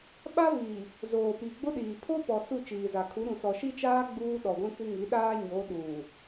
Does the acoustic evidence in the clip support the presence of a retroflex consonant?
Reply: no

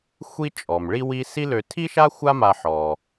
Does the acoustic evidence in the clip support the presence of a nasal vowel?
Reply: no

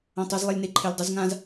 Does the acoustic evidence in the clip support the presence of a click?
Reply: yes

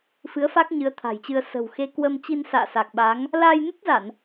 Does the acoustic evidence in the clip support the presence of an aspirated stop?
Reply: yes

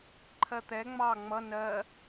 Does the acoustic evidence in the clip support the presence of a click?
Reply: yes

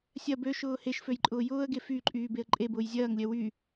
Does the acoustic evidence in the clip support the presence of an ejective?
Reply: yes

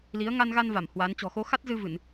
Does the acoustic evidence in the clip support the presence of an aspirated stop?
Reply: no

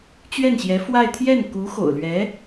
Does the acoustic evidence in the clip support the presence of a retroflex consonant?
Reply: no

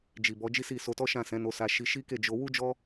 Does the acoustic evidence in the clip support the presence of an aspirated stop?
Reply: no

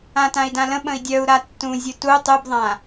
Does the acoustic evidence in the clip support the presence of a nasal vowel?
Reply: yes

